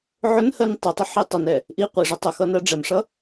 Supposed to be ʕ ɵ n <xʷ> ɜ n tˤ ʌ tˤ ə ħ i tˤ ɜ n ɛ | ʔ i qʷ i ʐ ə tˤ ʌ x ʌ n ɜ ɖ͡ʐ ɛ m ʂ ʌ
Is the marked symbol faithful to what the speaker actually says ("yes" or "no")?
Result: no